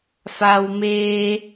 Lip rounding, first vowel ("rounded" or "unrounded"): unrounded